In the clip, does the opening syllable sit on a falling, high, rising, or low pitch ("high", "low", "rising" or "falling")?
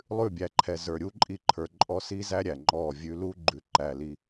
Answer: falling